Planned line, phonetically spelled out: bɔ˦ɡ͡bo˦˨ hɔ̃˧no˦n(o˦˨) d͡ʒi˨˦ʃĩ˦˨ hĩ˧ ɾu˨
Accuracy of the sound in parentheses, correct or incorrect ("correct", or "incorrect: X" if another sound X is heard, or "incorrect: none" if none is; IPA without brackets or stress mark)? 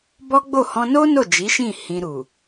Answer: correct